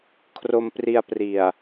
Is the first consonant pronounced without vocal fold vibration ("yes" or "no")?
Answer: yes